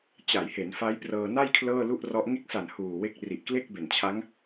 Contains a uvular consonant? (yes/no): no